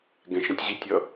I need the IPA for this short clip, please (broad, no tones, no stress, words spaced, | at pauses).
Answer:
ɡɛ̃ʃɛ̃tʲ ʑitʲʌ